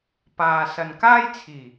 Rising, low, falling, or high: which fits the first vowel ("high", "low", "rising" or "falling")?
low